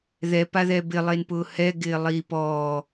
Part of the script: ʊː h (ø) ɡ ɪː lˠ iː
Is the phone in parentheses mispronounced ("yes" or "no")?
yes